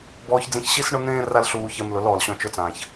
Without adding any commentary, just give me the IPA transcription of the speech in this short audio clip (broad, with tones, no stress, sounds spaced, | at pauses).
b ɔː˧ ç d͡z ĩ˧ ç ɕ i˦ s ɳ ʊ˦ n̪ ẽː˦ r a˦ l ɬ uː˧ ç ɛ˧ m l ʊ˨˦ l ɔː˨ l ɕ ɔ̃˧ t͡ʃ ʊ˧ t͡s ãː˨ ç